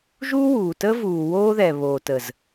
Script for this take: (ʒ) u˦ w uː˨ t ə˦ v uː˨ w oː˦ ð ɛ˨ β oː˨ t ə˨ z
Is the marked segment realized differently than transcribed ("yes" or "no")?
no